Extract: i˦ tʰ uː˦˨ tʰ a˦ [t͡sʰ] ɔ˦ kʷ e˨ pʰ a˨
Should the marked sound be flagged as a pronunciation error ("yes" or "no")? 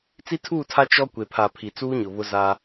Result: yes